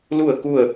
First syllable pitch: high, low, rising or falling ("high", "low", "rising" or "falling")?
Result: falling